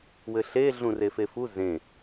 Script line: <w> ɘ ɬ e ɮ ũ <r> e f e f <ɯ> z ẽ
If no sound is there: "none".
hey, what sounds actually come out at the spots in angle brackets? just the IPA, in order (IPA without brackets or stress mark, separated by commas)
w, r, u